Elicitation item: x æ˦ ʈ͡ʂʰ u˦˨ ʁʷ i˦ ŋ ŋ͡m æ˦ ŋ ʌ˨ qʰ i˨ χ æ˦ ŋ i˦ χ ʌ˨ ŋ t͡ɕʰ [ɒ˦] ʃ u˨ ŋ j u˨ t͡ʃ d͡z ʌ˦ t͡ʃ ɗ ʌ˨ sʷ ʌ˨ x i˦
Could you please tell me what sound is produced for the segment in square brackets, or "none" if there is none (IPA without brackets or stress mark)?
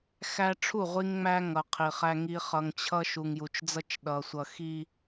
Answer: ʌ˦